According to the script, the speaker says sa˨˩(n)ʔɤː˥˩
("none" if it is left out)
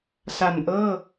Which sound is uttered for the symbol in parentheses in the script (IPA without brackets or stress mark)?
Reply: n